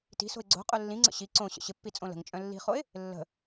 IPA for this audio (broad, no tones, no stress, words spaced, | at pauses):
ti̤so̤ɪ̯ ɡ͡ǀo̤ qʼœlːĩŋ͡ǀə̰ ɕi ǀõ ɕə̰ɕɪpːi t͡sʼõlə̤ŋt͡ʃʼœ̃ lːi̤χoɪ̯ | lːə̤